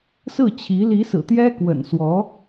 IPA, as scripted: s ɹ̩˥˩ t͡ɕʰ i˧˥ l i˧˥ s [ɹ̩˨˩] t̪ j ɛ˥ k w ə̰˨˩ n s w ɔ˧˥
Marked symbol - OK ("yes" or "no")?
yes